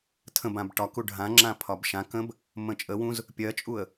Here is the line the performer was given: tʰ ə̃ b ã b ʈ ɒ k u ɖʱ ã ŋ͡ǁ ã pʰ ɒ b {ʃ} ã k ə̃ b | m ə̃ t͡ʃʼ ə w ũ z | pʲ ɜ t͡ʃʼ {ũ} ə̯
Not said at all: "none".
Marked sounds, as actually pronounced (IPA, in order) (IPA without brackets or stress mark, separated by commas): ʃ, u